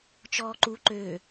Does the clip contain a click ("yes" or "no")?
yes